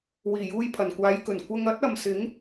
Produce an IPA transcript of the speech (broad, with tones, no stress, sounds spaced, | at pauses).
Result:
w iː˨˩ j uː˧ j pʰ ɐ˨˩ n kʷ aː˨˧ j k ɵ˨˩ n kʷ ɐ˧ ŋ ɐ˥ t̚ ɐ˨ m s ɪ˨˥ ŋ